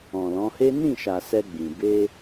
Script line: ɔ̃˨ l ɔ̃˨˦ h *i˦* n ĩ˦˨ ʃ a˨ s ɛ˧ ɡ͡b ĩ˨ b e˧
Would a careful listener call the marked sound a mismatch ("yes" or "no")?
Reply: yes